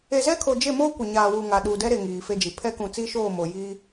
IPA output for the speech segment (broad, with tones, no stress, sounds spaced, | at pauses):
e˨ z ɛ˦ kʰ o˨ d͡ʒ e˦˨ m oː˦ kʷ ɪ˨ ɲ aː˨ w u˨ ŋ a˨ ɗ u˨ d ɛ˦ ɾ e˨ ŋ iː˨ f e˦ d͡ʒ i˨ pʰ ɛ˦ k ũ˨ t͡s iː˦ ʃ oː˦˨ m o˨ j i˦